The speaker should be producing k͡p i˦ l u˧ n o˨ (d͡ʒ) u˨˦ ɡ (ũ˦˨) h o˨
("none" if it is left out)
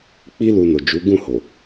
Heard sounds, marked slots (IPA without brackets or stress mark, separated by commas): d͡ʒ, ũ˦˨